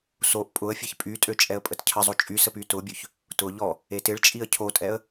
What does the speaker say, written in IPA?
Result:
soʔ pʼʊə̯fʲeç pʼytʼø t͡ʃʼɛə̯pʼətcʰəzˤo t͡ʃʼysə pytʊbʲøç | tʊ ʎɔ | etɪɭt͡ʃʼiə̯ cʰotʼɛə̯

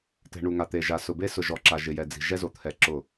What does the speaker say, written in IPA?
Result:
tɛ̤˨ ɳu˨ŋa˨ t̪e˨ ʒa˨sʊ˨be˦ sʊ˨ʒɔ˨ǁa˨ ʒɪ˨jɛ˨d͡zi̤˨ ʒɛ˦zo˨t̪ʰɛ˨ ǁʊ˦˨

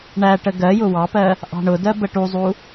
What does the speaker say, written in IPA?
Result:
ɳæʈə ɡɜjʊ wɑpɜ | ʔɑ̤ɳʊdɜ bəʈuzˤu

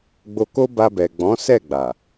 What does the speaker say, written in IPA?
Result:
ɡ͡bo˧ko˦ba˧bɛ˨ ɡ͡bɔ̃˨˦sɛ˦˨ɡ͡ba˨

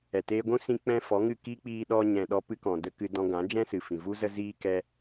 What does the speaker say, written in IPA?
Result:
ɛ˨teː˧ɡʷũ˦ sĩ˧k͡pɛ̃˧ fɔ˨˦ŋɨ˦˨ kiː˦k͡piː˧ɗɔ˧ ɲɛ̃˨ɗɔ˧ pɨ˧kɔ̃˨də˧ kɨ˧dɔ̃˧ɡã˨˦ d͡ʒɛ̃˦sɨ˨fĩ˨vu˦ zə˦ziː˦ kɛ˦

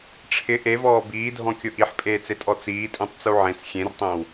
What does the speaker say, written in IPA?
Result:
ʈ͡ʂʰɪ ʔevɔː biːdʱɔ̃kʲʊ ʔiħpʼeːt͡setʼɔ t͡siːtʼĩtˤt͡su ʕẽt͡s xʲẽrtˤẽw

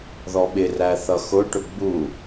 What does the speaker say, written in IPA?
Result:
ðɔɓɪ ræθʌxʊ ʈʊɡ͡bu

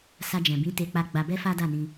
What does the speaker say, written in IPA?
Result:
sa˧d͡ʒɛ̃˨bĩ˨˦ te˧k͡pa˧ ɡ͡ba˧bɛ˦fa˦ da˦˨nĩ˧

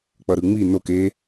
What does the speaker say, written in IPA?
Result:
k͡pʌɾɯŋ͡mi nok e

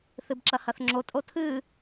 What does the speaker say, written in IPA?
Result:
θɨbǁɐhɐθŋ͡ǁo tʼotʰɨː

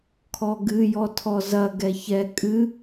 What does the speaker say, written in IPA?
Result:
kʰɔɡɨjɔ tʰɔzɐ ɡɛçɛ kʼɨ

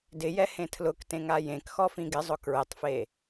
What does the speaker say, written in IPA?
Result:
dɪjɛhẽ tʰlʊktẽŋa jẽkxɔfĩ ɡɪzˤʊ kɹɪtˤfe

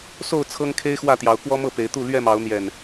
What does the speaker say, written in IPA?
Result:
so˥˨ʊ̯ t͡sʰɤ˦ŋkʰe˦ɪ̯ xwä˥˨t̪jɑ˨˦ʊ̯ kwɔ˦mɤ˥˨pe˨˦ɪ̯t̪u˥˨ lɥɛ˥˨mɑ˨˦ʊ̯n̪jɛ˨˩n

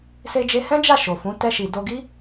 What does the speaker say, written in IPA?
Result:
se˧d͡ʒe˧ hɛ̃˦d͡ʒa˦˨ ʃo˨fũ˨˦ tɛ˧ʃi˨ do˧ ɡi˦

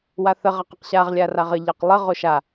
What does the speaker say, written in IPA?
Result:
waθə ʁɐqɐqɕaʁ lʲaraʁə ʎɐqlˠə ʁoʃa

